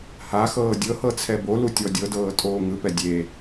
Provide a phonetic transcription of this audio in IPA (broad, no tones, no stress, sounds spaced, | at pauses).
h a x ɤː dʲ ɤ h ɤ t͡sʰ ɛ b o l u tʲ ɔ dʲ ɤ d ɤː tʼ oː ŋ ɯ p ɛ dʲ e